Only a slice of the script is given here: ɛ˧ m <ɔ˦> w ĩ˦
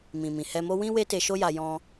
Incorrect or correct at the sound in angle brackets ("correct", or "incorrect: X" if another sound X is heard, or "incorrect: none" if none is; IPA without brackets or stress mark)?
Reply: incorrect: o˦